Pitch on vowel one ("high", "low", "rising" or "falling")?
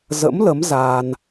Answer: rising